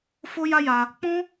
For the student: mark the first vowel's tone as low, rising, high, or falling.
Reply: high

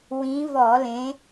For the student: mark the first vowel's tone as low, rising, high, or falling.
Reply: rising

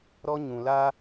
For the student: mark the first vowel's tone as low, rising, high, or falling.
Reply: high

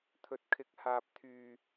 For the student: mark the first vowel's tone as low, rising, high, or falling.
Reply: low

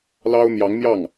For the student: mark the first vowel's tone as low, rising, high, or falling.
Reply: high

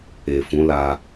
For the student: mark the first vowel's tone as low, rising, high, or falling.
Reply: low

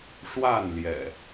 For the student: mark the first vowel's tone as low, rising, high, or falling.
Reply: falling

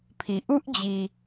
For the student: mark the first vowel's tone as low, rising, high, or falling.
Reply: low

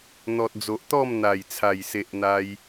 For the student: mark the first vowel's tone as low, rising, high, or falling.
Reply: low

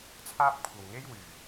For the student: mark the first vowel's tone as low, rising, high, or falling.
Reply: high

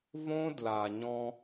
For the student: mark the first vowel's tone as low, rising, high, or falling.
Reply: high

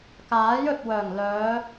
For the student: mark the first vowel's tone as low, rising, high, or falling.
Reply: rising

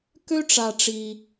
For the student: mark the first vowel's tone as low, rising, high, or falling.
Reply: high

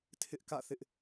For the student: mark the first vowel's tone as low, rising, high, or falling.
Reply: high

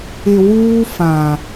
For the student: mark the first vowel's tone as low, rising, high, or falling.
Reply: low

